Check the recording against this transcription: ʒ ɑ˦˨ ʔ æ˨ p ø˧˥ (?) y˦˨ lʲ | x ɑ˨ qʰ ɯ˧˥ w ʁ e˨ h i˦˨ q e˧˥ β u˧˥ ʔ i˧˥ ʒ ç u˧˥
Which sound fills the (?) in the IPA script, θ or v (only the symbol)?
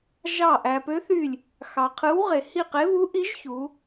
θ